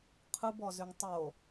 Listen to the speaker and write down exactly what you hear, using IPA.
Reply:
qʰ ɯ b ɔ z ʏ ŋ tˤ o

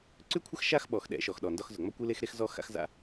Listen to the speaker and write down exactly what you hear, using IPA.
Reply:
ǀ ʉ˦ kʷʰ ə˦ x ʃ a˦ x ɓ ɔ˨ x ɗ ɛ̰˨˦ ʃ ɔ˨ x ɗ ɔ˨ n d ɒ˦ x z ʊ˨ ŋ͡m ɒ˦ kʷ ɨ˦ l e˦ x ɾ e˦ x z ɔ˦ x a̰˦ x z a̰˦

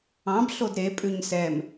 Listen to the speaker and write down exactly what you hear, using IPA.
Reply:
ɑ̃ b ɬ o d ɾ e pʼ ʉ ɲ s ɛ m

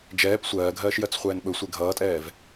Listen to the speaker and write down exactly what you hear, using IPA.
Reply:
d͡ʒ ɛː p sʷ ɜː ɡʱ ɜː ʃ j ɜ t͡s χʷ ɛː n ɓ ɵ sʷ e ɡʱ ʌː tʼ ɛː v

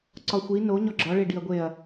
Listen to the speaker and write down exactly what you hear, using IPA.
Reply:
ǀ ɒ xʷ i n o ɲ ɒ ɡ͡ǁ ɒ ɭ e ɖ i ɐ̯ ɡʷ e ɐ̯

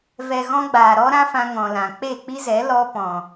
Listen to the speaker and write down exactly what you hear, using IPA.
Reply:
v ɛ˨ ɣ ɔ̃˧ ɡ͡b aː˨ ɾ ɔ˦ ɾ ã˦ f ã˧ ŋ ɔ̃˨ l ã˨ k͡p e˦˨ k͡p i˦ z ɛ˨˦ l ɔ˧ p ɔ̃˨

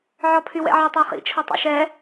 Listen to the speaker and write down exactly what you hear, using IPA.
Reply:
ʕ ɔ pʰ y w ɛ̰ ʕ ɔ tˤ ɔ χ ḭ t͡ʃʰ ɔ tˤ o̰ ʃ ɛ

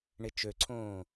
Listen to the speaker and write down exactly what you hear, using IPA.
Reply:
ɳ ɪ t͡ʃ ø ǀʰ õː

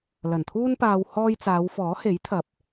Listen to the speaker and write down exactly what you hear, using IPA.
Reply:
l ɐ˨˩ n t̪ʰ uː˥ n p aː˧ w h ɔː˥ j t͡s aː˨˧ w f ɔː˨˥ h e˨˥ j t̪ʰ ɐ˨˥ p̚

